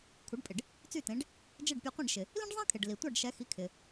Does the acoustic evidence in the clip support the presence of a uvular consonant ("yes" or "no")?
yes